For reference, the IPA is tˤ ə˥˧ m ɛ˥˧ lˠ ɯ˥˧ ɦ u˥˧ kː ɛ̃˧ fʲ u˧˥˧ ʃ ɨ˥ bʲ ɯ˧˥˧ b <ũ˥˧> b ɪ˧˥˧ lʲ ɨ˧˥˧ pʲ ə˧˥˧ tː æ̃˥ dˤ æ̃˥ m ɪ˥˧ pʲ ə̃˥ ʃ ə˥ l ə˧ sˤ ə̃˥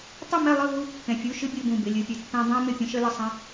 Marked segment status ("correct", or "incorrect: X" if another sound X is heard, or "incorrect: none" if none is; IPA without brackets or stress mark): correct